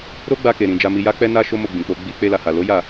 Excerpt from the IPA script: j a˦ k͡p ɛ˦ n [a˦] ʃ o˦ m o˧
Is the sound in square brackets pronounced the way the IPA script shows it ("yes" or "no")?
yes